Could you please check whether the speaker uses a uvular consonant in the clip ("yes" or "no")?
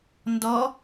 no